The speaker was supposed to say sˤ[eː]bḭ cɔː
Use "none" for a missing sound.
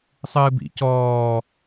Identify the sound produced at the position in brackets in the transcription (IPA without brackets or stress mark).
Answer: ɨː